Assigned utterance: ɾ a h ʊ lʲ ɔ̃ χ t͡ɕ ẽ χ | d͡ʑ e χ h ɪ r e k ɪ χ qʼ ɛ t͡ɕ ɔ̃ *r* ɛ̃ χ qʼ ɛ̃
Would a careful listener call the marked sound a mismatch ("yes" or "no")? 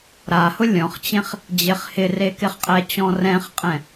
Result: no